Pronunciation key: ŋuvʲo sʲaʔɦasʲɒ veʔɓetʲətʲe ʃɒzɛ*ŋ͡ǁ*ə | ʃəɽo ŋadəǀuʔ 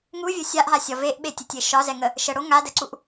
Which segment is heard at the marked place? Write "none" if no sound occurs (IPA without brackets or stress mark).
ŋ